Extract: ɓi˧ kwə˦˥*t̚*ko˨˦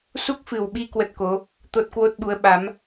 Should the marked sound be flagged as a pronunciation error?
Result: no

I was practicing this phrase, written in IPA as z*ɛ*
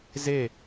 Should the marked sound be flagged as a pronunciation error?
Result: yes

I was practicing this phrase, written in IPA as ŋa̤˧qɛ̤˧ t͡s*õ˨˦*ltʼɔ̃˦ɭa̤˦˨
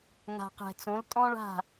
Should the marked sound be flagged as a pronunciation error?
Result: no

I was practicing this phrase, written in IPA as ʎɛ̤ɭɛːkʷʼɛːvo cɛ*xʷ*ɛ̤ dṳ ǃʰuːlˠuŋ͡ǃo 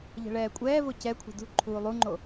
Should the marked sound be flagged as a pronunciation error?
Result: yes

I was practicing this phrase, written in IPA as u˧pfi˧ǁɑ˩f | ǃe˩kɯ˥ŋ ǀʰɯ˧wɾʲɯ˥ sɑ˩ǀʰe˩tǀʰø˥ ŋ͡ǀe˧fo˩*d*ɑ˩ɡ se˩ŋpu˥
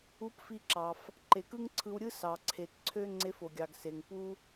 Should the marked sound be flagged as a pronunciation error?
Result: yes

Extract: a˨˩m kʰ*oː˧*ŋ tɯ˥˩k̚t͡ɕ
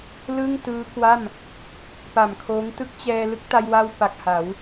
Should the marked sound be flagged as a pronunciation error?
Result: yes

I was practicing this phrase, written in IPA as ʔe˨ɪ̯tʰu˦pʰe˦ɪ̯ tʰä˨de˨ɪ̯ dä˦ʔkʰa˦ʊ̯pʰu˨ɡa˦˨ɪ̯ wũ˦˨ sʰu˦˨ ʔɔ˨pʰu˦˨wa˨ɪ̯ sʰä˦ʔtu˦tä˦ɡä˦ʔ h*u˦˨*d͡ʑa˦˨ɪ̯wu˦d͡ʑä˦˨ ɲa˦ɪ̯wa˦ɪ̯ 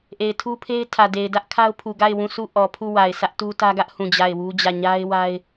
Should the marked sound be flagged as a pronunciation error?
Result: yes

